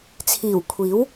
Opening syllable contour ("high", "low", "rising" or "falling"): low